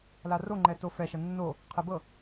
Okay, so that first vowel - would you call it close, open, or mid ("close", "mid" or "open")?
open